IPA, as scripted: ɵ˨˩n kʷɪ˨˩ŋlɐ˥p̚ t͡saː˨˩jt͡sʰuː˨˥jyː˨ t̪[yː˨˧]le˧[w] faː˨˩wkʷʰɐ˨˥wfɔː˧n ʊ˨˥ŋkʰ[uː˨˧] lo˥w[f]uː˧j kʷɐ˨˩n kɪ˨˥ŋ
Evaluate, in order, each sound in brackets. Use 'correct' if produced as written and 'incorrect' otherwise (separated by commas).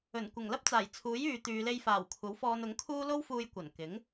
correct, incorrect, incorrect, correct